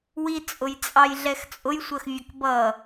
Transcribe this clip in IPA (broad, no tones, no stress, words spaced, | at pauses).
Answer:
wit͡sʼʊjt͡sʼɑj ɮɛxt͡sʼʊjsʷɜxvʲʊk bʌ